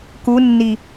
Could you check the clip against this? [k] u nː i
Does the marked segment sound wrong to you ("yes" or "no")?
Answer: no